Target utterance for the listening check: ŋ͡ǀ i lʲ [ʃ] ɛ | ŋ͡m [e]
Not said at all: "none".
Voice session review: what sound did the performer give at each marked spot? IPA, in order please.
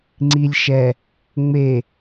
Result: ʃ, e

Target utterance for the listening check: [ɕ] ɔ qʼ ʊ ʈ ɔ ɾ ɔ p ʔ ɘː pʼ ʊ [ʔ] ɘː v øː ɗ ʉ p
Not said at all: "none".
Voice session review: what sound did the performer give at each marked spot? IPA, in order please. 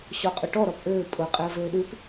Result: ɕ, qʼ

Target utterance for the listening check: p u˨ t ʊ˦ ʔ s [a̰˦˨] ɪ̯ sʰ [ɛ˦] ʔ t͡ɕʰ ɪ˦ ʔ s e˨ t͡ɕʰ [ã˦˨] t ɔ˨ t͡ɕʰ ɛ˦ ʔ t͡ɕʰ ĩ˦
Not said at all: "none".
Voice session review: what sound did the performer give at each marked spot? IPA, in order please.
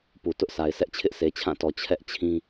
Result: a˨, ɛ˦, ã˦˨

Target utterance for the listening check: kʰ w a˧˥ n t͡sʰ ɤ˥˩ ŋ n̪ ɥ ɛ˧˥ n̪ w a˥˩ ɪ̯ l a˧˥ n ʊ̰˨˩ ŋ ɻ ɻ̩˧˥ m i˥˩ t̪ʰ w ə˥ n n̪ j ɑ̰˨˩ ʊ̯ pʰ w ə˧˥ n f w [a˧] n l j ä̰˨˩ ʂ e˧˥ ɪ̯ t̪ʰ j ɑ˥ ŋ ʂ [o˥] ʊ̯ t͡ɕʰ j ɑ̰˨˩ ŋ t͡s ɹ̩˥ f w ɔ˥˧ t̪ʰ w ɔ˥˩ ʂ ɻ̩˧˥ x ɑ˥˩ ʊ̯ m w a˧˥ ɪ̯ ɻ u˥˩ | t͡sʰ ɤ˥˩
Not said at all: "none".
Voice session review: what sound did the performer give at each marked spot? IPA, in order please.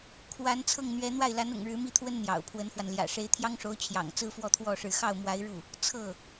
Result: a˧, o˧˥

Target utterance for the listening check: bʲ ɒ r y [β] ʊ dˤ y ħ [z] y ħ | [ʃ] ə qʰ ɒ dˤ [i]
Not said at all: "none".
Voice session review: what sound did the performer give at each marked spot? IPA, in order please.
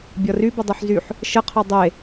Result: b, z, ʃ, e

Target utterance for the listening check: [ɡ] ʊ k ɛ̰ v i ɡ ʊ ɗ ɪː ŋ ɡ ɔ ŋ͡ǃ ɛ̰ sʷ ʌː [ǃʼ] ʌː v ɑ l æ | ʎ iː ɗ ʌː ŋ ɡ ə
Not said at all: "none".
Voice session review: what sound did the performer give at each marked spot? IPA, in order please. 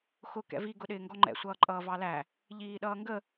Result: x, ǃʼ

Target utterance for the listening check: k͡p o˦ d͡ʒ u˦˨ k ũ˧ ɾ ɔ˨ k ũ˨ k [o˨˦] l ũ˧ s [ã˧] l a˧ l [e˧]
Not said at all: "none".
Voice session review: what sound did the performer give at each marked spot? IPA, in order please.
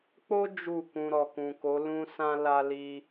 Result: o˨˦, ã˧, i˧

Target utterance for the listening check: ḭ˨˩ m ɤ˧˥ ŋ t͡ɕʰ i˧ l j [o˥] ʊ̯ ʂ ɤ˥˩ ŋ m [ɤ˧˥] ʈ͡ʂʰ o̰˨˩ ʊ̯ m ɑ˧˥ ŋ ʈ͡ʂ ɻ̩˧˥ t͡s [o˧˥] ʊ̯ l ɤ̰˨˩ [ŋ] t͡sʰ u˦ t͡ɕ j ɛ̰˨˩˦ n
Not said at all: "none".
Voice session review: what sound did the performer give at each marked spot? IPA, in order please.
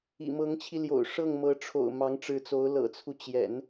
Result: o̰˨˩, ɤ˧˥, o˧˥, none

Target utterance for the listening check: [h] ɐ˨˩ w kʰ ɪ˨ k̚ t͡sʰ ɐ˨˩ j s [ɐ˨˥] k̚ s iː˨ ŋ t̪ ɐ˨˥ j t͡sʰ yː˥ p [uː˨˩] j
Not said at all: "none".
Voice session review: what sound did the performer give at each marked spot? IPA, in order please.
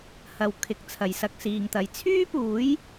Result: h, ɐ˧, uː˨˥

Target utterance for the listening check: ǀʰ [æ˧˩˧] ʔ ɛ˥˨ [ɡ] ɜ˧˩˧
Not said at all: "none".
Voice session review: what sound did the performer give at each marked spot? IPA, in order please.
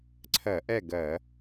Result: ɜ˧˩˧, ɡ

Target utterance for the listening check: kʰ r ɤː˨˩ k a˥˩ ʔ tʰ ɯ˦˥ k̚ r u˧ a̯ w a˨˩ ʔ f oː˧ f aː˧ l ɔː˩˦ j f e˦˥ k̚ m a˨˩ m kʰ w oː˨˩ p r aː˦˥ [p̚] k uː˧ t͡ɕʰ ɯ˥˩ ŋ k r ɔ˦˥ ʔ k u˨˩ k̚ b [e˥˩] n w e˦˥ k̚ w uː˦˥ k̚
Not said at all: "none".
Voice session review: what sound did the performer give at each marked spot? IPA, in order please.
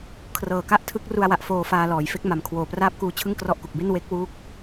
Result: p̚, e˥˩

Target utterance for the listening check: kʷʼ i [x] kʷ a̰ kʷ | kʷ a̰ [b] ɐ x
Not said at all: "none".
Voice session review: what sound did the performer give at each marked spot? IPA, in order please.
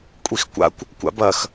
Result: x, b

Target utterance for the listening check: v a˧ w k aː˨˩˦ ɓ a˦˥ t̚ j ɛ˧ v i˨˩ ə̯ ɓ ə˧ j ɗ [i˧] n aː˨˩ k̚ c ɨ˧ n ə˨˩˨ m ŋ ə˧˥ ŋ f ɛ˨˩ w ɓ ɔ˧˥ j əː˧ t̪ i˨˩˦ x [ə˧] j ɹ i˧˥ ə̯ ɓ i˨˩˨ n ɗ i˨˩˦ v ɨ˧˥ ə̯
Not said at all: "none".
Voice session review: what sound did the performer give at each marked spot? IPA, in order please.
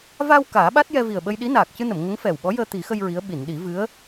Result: i˧˥, ə˧

